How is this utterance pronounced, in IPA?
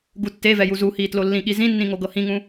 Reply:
ɡutːevɛ juzuhiː tlolːĩɠi zĩnːĩ ŋoɡɤhĩŋũ

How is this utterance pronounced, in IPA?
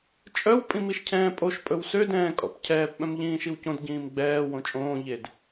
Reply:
t͡ʃʼœw pʼĩmiʃcʰɛ̃ːpʼoʃ pʼɵwsød ɛ̃ːkʼɔ̰pcʰɛːp ɓœ̃mʎĩːʃiwcõd ɟĩːmɡ͡bɛː wõt͡ʃʼõː ʎed

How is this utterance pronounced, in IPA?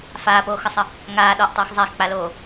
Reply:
faːpoːxəsˤə | ŋaː ɗɔʔtˤoːx zˤaxk͡paloː

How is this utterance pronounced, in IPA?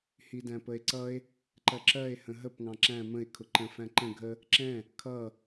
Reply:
hidæ̃pəe̯ǀʌe̯ | ǃɜǁɜe̯ hə̃ɦəp ŋɑ̃ǁæ̃ mə̃e̯ kʰʊǃə̃ fæ̃ǃə̃ ɡʱə | ǁɛ̃ | kʰʌ

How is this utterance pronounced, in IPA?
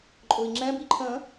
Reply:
ǃʼʊi̯ŋ͡ǁɛ̃b iǃʰə̃

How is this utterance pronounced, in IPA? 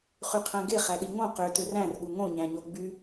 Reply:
χyqʰæ̃ɡe χæɗiŋõ qø tøræ̃r ɠuŋõ ɲæ̃ɲoɡ͡by

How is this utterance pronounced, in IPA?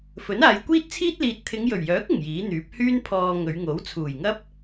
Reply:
fɵ˨˥naː˨˧jkʷiː˥t̚t͡sʰiː˥t̚ liː˨t̚t̪ʰɪ˨˧ŋjɵ˨˩ɥjœː˨˥k̚ ɪ˨˩ŋjiː˨˥n̪yː˨˥p̚ hyː˥npʰɔː˧ ŋɵ˨˧ɥŋo˨˥w t͡sʰuː˨˩jŋɐ˥p̚

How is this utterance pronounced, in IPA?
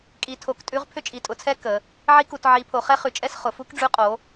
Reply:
kʼi˩˧tʰo˩˧k tʼʉ˧˥ʁ pʰʏ˧˥t͡ʃʼi˩˧tʼʊ˩˧t͡sʰɛ˧˥ kə˩˧ | ʕi˧˥ku˩˧t ʕi˩˧ pʰo˩˧χɛ˧˥χʉ˩˧t͡ʃʼɛ˧˥s χʊ˩˧ fu˧˥kɖ͡ʐʉ˧˥ qʼo˩˧

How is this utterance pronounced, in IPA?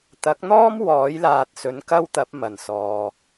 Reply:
t̪ɐ˨˥k̚n̪ɔː˥m wɔː˨˥jlaː˨t̚sɵ˨˥n kɐ˥wt̪ɐ˨˥p̚ mɐ˨˩nsɔː˨

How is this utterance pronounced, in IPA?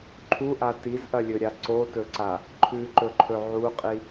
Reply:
ǃʰuʔa tizʔɐlʲɵɾʲa ǀotɵǀa | ǃʰʉǃɵǃʰɵ ʕuqʼi

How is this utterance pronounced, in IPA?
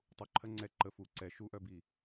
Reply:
tˤuǃʰɜ ŋ͡ǀɛ ǃə fu ǀɛ ʃuʔœbi

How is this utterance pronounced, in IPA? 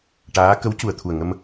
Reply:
ʈaː˧˥ kə˧˥wcu˨˩ə̯t̪ʰu˨˩ə̯ŋə˧m

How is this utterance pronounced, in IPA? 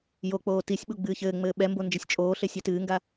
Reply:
jok͡poː tisʲɓu ɡ͡bɨːçɘːŋ͡mɘː ɓɛmbo nd͡ʒɘsʲt͡ʃʼoːɬe sʲɛtɨːŋɡa

